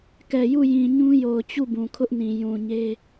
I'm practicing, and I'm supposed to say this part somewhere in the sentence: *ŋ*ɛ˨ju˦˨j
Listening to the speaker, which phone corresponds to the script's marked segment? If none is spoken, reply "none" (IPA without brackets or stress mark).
k